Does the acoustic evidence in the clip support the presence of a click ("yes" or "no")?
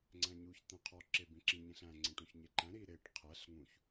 yes